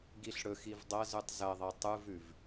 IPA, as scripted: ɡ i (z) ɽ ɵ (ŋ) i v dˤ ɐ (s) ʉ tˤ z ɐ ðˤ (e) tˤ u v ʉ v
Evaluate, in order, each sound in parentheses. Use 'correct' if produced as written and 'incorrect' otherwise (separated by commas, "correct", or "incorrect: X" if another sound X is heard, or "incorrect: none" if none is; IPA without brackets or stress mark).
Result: incorrect: ɬ, incorrect: x, incorrect: z, correct